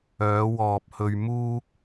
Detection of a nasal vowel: absent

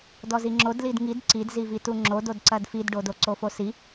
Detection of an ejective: absent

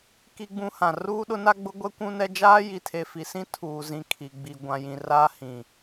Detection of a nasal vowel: present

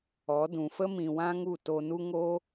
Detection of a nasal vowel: present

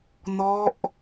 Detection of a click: absent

